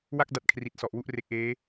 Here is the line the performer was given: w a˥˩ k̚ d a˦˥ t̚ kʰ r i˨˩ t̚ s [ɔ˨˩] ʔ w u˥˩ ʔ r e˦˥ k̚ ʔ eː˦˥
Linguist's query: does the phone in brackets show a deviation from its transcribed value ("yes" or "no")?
no